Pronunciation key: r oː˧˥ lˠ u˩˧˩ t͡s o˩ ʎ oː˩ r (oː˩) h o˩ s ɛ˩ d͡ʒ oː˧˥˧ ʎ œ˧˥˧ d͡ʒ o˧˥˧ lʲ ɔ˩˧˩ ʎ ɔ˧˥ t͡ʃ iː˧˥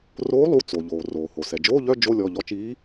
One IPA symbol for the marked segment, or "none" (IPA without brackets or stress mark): oː˩